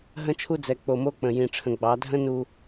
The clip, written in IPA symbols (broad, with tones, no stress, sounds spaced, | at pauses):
ɦ ə̃˦ t͡ʃʰ u˦ d͡z ɛ˨ k͡p o˨ m o˦ k͡p ə̃˨ j ĩ˨ ʈ͡ʂʰ ə̃˨ ɡ͡b ɑ˨˦ dʱ ə̃˦ n u˨